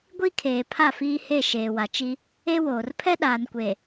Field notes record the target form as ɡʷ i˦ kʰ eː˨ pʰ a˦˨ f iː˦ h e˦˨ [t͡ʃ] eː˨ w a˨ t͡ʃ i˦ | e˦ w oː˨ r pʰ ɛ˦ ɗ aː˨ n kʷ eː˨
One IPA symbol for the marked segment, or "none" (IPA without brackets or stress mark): ʃ